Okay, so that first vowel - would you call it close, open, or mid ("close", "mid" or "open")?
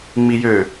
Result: close